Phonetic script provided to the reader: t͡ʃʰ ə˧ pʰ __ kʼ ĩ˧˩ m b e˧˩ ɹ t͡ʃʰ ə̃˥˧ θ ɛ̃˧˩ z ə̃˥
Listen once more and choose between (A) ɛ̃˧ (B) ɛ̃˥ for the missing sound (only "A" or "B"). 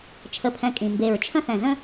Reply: A